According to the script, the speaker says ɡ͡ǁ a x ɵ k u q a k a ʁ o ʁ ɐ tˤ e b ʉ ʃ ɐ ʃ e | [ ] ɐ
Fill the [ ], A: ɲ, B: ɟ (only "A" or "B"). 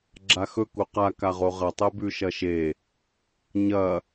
A